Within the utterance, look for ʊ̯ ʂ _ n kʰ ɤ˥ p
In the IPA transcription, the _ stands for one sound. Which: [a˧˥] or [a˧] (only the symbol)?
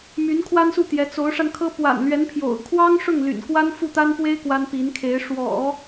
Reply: a˧